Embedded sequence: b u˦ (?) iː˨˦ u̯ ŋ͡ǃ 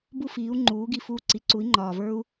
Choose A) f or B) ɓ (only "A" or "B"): A